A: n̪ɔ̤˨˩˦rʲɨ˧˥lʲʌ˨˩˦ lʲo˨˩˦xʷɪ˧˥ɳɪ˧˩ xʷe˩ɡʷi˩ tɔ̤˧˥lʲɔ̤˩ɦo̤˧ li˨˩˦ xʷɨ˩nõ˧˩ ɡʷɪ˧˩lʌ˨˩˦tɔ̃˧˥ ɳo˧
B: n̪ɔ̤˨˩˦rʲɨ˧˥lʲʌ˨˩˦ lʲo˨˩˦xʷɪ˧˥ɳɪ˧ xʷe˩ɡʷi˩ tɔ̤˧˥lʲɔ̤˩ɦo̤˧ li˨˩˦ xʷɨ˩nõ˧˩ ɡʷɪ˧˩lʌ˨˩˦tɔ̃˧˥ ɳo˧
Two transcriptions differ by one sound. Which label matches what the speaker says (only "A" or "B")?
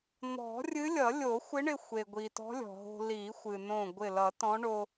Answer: B